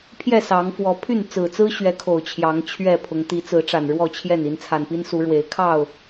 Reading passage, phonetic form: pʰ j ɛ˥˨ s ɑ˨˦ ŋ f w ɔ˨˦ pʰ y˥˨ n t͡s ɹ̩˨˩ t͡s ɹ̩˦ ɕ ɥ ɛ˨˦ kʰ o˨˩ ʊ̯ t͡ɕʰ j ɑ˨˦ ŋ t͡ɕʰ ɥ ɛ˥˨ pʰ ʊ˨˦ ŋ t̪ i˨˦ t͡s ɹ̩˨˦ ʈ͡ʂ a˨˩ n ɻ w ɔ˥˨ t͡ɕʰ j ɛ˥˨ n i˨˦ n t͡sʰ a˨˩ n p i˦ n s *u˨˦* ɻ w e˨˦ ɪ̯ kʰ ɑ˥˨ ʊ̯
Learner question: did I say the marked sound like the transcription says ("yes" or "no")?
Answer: yes